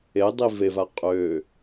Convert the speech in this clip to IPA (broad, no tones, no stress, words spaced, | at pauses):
edˤi veva qʼø